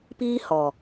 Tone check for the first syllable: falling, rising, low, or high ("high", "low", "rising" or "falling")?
high